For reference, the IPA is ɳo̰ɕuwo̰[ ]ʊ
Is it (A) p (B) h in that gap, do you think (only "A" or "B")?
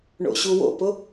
A